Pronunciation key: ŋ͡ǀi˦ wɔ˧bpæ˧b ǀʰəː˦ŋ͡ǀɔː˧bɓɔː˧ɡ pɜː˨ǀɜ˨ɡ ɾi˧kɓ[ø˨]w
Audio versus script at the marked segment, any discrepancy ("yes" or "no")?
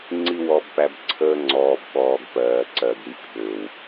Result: no